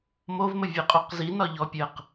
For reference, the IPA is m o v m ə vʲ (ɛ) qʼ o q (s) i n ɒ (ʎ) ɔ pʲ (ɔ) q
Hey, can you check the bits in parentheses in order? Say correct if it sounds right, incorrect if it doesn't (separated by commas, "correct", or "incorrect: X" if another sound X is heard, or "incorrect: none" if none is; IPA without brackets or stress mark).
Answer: correct, incorrect: z, correct, incorrect: ə